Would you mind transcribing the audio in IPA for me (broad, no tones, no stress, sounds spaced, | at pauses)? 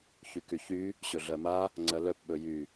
ç y k y ç y | ɕ ɵ ɮ ɜ m a | ŋ͡ǀ ɜ l œ p ɓ ɵ j y